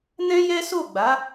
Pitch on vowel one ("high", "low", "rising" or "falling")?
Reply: high